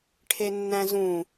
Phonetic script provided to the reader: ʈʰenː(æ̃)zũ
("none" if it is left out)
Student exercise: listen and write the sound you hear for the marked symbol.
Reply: æ̃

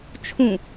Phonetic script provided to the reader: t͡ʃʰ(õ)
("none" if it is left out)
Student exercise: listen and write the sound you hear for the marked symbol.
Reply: ũ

